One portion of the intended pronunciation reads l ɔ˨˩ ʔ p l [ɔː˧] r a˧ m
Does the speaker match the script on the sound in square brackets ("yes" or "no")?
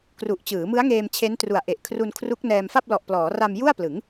no